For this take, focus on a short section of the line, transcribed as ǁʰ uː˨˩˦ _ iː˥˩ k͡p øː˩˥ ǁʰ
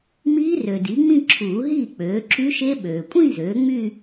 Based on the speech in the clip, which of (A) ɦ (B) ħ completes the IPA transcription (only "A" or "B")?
A